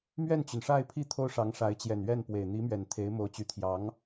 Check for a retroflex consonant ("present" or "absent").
present